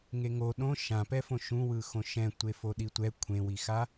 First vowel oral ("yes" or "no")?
yes